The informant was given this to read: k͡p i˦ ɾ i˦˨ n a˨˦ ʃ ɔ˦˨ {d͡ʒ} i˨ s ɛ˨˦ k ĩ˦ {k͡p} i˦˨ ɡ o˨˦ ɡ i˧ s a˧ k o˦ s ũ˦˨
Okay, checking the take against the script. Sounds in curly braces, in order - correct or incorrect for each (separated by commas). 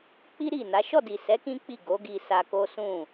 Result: incorrect, correct